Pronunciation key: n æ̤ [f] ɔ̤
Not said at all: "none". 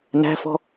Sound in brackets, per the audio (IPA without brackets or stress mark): f